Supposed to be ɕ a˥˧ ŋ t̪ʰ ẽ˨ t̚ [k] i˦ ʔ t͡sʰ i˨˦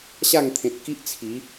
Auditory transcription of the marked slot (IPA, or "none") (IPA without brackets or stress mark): k